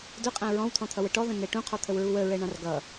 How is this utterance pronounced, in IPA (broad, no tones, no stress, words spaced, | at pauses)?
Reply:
dʊqʼæ̃ ɹɔ̃wt̪ʰɔ̃t̪ʰʌwə ʈɔðə̃nɛ ʈũqʰɔt̪ʰəwɹu wəɹɛɳɑ̃r ɡʌ